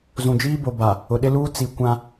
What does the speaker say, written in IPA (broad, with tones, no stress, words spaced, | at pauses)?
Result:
zũ˨d͡ʒiː˦bo˨ ba˨ | ʊ˨ɗɪ˦luː˦ t͡si˨ kʷã˦